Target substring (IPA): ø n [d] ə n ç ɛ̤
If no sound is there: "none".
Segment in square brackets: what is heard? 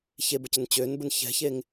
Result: b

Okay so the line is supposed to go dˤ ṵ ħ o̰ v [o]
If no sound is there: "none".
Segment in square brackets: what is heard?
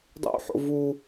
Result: u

